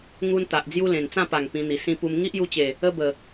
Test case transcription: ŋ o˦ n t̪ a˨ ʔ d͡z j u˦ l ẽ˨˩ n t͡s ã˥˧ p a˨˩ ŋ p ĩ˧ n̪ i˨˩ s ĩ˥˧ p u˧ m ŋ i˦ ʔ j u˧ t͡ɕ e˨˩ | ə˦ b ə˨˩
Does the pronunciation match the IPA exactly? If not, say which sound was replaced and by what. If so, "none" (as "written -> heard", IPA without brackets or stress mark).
o˦ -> u˦